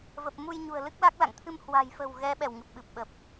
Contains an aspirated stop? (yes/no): yes